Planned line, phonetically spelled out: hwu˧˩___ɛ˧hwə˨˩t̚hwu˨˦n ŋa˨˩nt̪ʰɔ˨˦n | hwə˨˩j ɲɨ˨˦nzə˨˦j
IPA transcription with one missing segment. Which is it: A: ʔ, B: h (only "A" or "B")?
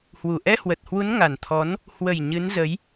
A